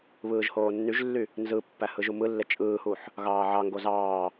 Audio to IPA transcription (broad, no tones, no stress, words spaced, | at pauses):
βɯːʒhoːnːyʒlːy | nzɯpːæ hɯʒumɯlːe t͡ʃʼɯːhuħ | ɣɑːʕɑŋɡo zɑː